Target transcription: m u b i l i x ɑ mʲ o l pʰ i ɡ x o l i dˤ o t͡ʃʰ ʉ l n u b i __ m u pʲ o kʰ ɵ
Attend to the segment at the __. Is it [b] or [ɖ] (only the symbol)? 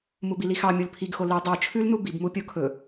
b